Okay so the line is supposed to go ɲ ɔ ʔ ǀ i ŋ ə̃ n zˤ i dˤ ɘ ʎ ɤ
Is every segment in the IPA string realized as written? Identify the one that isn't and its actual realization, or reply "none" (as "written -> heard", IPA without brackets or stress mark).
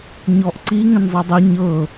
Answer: ʎ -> ɲ